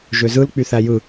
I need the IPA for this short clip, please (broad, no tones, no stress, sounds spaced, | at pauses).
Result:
ʒ ø z ɯ l k͡p y θ æ j ɯ